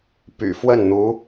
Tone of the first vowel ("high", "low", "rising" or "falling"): low